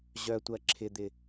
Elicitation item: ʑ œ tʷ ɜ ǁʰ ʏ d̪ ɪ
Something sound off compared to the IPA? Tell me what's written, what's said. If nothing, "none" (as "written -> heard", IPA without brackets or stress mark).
ʏ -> ɪ